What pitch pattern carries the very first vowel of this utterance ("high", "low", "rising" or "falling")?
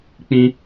high